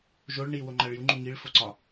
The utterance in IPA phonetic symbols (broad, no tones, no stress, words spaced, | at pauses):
ʒoɭ ɳi woŋ͡ǃæɭju ŋ͡ǃuŋiɭ foǀɒ